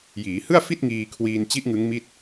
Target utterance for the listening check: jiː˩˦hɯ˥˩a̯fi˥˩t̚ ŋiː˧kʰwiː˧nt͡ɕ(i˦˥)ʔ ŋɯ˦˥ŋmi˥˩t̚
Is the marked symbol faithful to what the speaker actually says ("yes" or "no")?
yes